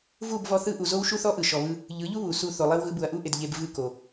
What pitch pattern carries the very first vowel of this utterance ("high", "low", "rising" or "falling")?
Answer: falling